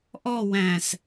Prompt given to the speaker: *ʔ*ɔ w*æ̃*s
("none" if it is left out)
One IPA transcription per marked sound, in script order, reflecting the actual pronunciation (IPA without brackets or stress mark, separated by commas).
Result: ʔ, æ̃